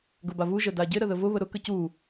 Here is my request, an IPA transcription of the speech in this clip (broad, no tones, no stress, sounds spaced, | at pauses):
ɡ ʊ b a v u ʒ ə d a ɟ ɪ ɾ ə ð ə v ʊ β ə ɾ ʊ k ə c u